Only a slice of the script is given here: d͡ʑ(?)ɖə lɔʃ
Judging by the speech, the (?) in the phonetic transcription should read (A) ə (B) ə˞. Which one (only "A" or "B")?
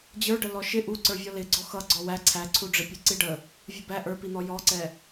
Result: B